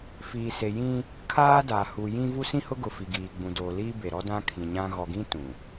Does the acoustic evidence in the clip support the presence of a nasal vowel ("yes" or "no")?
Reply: yes